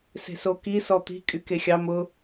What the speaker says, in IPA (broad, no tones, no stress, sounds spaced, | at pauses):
s e̤ s o k i s ɔ t̪ i̤ kʼ y k e xʲ ɑ m ʊ